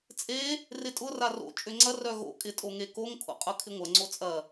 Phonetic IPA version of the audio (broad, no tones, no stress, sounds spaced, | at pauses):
t͡sʼ e | r ɪ tʼ ʊ r a r o̰ t͡ʃʼ ʏ ŋ͡ǀ ɐ r œ ɣ o̰ kʼ ɪ tʼ o ŋ e k o ŋ kʰ o̰ qʼ ʊ kʰ ɪ ŋʷ ɐ ŋ͡ǀ o t͡sʼ ɐ